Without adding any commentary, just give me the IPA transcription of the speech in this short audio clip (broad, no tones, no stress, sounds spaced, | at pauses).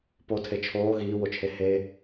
p o tʰ e t͡ʃʰ oː ɣ iː w o t͡ʃʰ e h e